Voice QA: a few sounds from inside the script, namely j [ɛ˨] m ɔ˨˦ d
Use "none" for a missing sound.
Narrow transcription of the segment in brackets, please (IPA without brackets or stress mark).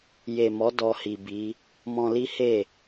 e˨